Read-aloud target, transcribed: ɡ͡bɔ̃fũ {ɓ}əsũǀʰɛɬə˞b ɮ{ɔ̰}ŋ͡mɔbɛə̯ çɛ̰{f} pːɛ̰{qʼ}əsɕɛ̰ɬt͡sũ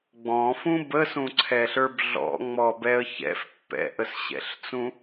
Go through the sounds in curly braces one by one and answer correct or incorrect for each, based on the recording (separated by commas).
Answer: incorrect, correct, correct, incorrect